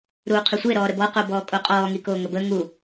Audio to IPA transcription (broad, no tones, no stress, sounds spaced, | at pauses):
ɾ uː qʰ ʉ sʷ e ɾ ɔː ɾ ə b ɔ q o b ɔː kʼ o qʼ ɔː ŋ i k oː ŋ ə b ə ŋ u